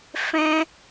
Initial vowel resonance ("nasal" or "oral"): nasal